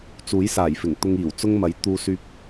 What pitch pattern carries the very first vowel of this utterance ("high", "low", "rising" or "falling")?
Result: rising